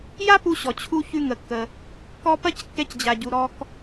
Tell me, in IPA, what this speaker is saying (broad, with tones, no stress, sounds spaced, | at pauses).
j a˥ p u˧ ɕ ɔ˩ t͡ɕʰ u˧ ç ʉ˧ ŋ ə˩ kː ə˩ | k ɔ˧ p ɐ˥ c kː ɛ˧ c d͡ʑ a˩ ɟ u˩ ɾ ɔ˧ k